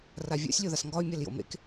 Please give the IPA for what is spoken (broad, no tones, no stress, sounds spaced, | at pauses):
r a vʲ ɔ̰ sʲ lʲ o ð a s ŋ ɡ ɒ y̯ mʲ a l j o̰ m ḛ k